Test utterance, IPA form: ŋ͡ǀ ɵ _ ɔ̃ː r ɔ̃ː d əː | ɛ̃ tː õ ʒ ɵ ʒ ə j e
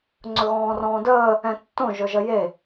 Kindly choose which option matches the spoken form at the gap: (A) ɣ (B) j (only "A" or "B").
A